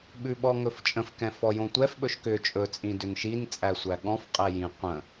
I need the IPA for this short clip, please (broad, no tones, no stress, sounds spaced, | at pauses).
ɓ ʉ ɓ ɔ ŋ ɵ f t͡ʃʼ ə̃ f k ɛ̃ f ɔ j õ tʷ ɛ f ɓ ɵ ʃ k ʏ t͡ʃʼ ɵ t͡sʼ ĩ d ʏ n ʃ i n t͡sʼ æ sʷ æ ɠ ɔ̃ f qʼ ɛ j ĩ qʷ ə̃